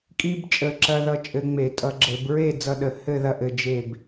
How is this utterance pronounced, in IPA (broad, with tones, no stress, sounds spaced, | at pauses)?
kʼ i˧ b t͡ʃʼ ə˨˩ ǁ ɐ˧ ð ʌ˧ t͡ʃʼ ɘ˧ ŋ͡m e˧˩˧ tʼ ʌ˧ ɡ͡ǁ ɘ˧˩˧ b ɹ e˥˧ d͡z ʌ˧ ɗ ə˨˩ h ɘ˥˧ ð ɐ˥˧ ʔ ɘ˧ d͡ʒ e˥˧ b